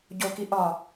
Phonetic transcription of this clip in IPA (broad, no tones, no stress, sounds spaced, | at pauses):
ɟ o k i ʔ ɒ